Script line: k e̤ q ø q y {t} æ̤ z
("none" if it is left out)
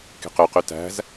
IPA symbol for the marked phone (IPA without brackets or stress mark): t